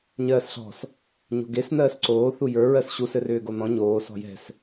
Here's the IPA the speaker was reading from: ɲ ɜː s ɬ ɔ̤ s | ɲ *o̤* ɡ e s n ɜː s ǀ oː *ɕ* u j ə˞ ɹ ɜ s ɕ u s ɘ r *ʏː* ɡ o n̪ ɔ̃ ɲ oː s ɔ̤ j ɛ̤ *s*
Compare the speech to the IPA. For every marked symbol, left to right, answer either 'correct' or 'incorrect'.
correct, incorrect: θ, correct, correct

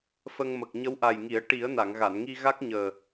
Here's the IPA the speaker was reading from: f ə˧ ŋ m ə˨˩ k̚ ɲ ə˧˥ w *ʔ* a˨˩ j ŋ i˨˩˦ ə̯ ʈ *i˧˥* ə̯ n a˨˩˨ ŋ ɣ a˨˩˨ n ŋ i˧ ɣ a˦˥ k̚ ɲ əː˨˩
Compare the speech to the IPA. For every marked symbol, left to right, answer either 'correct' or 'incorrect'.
correct, incorrect: i˨˩˦

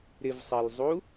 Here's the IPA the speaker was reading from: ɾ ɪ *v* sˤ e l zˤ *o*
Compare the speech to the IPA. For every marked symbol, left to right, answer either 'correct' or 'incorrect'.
correct, incorrect: u

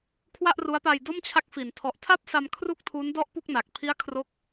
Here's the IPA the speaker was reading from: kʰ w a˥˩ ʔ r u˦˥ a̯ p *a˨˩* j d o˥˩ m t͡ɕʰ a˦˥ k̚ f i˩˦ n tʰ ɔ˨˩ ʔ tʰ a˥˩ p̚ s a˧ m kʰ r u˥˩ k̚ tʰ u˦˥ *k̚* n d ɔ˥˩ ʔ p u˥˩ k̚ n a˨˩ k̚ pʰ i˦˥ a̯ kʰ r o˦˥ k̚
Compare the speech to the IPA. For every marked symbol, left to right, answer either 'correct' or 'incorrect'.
incorrect: a˧, incorrect: none

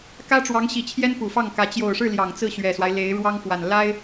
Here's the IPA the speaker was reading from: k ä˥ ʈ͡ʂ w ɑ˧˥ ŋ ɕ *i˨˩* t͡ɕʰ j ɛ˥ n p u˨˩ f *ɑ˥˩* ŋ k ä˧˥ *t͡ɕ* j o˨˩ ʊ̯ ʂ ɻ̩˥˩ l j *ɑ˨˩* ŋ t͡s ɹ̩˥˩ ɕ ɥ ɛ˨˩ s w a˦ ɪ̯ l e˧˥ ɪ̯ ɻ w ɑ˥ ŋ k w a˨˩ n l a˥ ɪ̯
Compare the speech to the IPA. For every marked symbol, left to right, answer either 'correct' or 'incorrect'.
correct, correct, correct, correct

